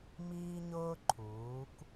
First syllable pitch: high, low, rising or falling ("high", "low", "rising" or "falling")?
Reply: high